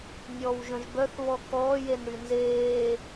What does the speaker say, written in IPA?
nʲ ɔː w ʒ œ̃ ʒ b œ θ β ɔ k ɔː j e n ɽ y n z eː

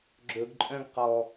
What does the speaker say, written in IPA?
ɡ͡ǁ ɵ ɡ ǃʼ œ̃ ɡ q ɔ

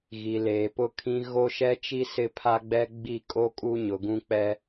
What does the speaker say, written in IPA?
ɣ i˨ l eː˨ p ʊ˦ kʰ ĩ˦ ɣ o˦ ʃ ɛ˦ t͡ʃ i˦ s ɪ˦ pʰ a˦ ɡ͡b ɛ˦ ɡ͡b i˦˨ kʼ o˦ kʼ u˦ ɲ ʊ˨ ɡ ũ˦ k͡p ɛ˦

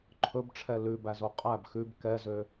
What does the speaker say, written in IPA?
ǃʰ ɵ b ʈ͡ʂʰ ɛ l ʉ b æ z o qʼ æ b x ʉ b k ɛ z ø

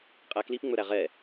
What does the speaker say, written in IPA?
qʼ æ k l i p ŋ͡m ɵ ɾ æ ʁ ɛ

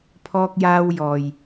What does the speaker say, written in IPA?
pʰ ɔː˧ k̚ j aː˧ w j ɔː˨ j

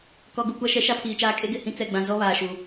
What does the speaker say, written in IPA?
k ɔ˨ ɡ u˨ kʷ a˦ ʃ ɛ˨˦ ʃ a˦ pʰ iː˨ t͡ʃ aː˦ kʼ e˦ ɡ ɪ˦˨ h ĩ˦ t͡s ɛ˨ ɡ͡b ã˨ z ɔ˦ β aː˨ ʃ u˨

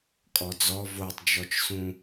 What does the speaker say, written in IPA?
kʼ ɔ d͡z ɔ v o tˤ d͡ʒ ɔ t͡ʃ s ũ

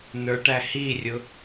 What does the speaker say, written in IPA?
n ə˞ ʈ æ h i rʲ ʊ

